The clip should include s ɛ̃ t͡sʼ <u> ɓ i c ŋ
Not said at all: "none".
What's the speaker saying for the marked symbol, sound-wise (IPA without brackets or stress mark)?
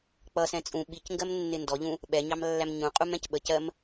ũ